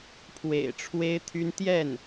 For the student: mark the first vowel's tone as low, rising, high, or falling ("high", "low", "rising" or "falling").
low